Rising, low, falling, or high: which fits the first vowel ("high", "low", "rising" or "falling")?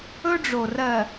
high